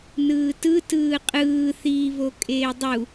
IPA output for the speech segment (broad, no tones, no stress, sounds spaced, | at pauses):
n ɯː t ɯ t ɯː qʼ ɯː θ iː β o kʼ eː dˤ u